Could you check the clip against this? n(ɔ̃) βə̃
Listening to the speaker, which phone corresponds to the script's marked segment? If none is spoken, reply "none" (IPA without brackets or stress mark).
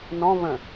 ɔ̃